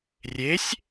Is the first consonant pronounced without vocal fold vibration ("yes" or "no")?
no